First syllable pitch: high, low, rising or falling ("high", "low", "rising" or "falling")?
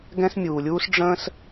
high